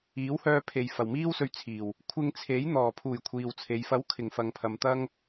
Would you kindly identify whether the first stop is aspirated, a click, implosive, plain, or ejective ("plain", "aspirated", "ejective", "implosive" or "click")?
aspirated